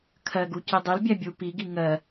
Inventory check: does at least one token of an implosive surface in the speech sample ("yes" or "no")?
no